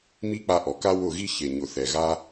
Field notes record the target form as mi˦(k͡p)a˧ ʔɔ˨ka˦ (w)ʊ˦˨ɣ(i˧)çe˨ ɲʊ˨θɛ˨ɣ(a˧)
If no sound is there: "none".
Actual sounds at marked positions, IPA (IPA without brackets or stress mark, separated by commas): k͡p, w, i˦, a˦